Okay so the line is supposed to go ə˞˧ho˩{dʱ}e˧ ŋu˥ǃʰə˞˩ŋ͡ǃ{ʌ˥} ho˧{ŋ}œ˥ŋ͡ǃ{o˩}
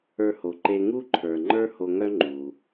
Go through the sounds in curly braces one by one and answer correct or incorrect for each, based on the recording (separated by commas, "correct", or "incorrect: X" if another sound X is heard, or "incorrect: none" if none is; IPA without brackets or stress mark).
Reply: incorrect: ǃ, incorrect: ə˞˥, correct, incorrect: u˩